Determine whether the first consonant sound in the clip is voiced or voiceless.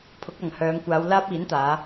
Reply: voiceless